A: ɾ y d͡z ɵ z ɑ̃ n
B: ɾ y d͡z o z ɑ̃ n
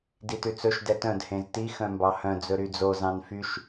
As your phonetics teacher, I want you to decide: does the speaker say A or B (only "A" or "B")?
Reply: B